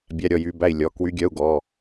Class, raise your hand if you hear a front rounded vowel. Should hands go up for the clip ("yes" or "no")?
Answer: yes